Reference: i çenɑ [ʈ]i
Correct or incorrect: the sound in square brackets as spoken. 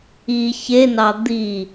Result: incorrect: d̪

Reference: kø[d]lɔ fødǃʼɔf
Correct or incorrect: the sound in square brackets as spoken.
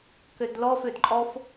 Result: correct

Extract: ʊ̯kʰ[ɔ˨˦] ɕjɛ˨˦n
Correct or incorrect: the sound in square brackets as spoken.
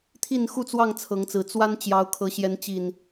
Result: incorrect: ɤ˨˦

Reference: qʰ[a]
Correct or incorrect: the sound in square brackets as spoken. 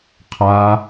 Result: correct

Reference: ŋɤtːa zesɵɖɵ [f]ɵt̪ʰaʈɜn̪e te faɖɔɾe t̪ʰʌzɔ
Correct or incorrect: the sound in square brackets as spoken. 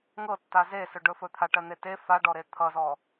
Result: correct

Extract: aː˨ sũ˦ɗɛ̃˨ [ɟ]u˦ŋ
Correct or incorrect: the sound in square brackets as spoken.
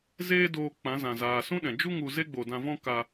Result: incorrect: d͡ʒ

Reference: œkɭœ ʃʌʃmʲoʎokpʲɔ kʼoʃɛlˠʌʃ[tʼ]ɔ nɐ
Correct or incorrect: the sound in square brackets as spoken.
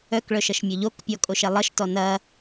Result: incorrect: t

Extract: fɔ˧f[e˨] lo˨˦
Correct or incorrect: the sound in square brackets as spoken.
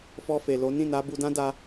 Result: correct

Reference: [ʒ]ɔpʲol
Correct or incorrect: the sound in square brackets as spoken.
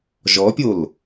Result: correct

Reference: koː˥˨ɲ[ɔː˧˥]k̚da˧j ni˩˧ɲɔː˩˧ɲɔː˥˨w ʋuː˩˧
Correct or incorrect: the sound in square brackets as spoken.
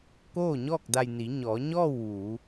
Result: incorrect: ɔː˥˨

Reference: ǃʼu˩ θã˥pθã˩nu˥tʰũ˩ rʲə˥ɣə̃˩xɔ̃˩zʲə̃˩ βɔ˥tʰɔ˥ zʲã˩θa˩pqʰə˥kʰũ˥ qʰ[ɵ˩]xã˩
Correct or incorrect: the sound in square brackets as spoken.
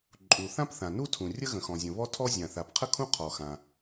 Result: incorrect: ɔ˩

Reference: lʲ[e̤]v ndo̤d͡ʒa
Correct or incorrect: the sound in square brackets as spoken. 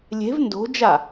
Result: correct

